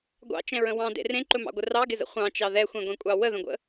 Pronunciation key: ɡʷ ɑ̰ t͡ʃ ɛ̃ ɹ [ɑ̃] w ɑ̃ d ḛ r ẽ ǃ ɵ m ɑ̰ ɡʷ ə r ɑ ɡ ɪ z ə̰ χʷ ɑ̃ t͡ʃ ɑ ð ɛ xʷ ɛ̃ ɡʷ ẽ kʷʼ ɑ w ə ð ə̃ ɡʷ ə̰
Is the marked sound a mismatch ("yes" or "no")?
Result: yes